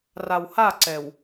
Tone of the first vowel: low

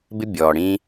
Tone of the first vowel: high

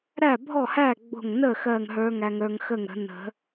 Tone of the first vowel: falling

